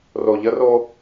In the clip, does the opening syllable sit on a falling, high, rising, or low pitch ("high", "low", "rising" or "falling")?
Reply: low